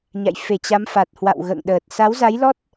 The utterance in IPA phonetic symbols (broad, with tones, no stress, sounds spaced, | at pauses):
ɲ a̰˧˨ j f e˧˩ t͡ɕ a˨˦ m f a˨˩ t̚ h w a̰˧˨ w ɣ ə̰ː˧˨ ŋ ɗ əː˨˩ t̚ s a˨˦ w z a˨˦ j l ɔ˦˥ t̚